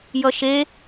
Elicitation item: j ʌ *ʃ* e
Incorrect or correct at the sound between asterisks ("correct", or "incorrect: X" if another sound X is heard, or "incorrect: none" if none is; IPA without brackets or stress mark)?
correct